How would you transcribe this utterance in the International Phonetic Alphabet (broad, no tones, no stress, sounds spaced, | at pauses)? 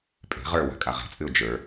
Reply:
pʼ e̤ ʁ ə˞ w a̤ kʼ a ʁ ɛ̤ t͡sʼ ɨ ʊ̯ d͡ʒ ə˞